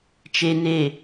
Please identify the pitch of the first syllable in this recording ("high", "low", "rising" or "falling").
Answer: low